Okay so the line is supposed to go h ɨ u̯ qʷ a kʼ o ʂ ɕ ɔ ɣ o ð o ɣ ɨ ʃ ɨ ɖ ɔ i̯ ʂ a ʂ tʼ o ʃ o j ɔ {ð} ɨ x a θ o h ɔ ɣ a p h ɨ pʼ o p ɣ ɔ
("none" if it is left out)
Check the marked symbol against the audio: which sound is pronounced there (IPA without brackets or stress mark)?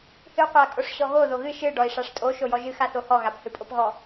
ʒ